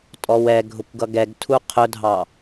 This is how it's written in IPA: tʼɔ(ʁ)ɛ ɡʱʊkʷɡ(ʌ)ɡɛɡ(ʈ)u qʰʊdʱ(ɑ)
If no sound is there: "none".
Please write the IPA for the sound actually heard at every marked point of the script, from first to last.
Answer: w, ʌ, tʰ, ɑ

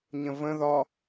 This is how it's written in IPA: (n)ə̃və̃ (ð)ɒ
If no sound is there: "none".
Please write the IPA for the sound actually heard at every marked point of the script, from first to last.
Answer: ɲ, ð

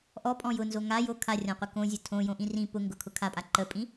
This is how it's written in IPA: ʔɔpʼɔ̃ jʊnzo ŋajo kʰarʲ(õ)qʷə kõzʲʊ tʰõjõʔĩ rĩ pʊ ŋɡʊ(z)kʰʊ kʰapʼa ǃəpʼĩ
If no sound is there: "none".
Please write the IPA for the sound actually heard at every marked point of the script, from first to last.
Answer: ɔ̃, none

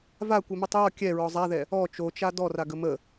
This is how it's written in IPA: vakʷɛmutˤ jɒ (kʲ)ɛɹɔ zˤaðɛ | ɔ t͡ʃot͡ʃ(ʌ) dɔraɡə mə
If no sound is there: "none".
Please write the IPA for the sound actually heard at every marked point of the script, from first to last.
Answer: kʲ, a

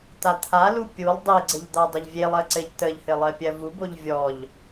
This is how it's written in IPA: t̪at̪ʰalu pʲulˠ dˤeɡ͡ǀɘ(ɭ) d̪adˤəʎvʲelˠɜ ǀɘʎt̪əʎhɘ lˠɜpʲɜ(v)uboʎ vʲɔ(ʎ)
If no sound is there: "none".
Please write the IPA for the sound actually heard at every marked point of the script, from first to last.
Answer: ʎ, v, ʎ

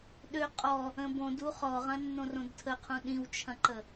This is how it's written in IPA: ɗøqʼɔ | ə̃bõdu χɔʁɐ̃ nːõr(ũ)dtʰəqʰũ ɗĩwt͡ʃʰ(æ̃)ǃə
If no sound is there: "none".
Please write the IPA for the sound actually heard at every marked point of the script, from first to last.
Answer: õ, ɐ̃

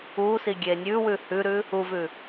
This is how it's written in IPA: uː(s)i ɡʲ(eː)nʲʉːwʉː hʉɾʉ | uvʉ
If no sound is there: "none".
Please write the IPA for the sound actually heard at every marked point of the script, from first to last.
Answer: s, eː

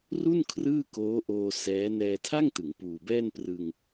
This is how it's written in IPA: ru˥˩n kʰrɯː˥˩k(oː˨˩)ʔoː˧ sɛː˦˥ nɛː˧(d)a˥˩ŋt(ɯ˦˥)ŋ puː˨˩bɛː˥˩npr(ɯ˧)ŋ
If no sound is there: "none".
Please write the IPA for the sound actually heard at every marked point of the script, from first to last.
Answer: oː˦˥, tʰ, ɯ˩˦, ɯ˧

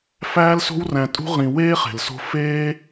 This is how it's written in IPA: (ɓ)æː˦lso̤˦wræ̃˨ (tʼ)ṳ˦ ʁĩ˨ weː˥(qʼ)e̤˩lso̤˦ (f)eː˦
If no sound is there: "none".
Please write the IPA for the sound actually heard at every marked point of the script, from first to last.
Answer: f, tʼ, χ, f

